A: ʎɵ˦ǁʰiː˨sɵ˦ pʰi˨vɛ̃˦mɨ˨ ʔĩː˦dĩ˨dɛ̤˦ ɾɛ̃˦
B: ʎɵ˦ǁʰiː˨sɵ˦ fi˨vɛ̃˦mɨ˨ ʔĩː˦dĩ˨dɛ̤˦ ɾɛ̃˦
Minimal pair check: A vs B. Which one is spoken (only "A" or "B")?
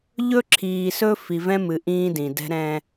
B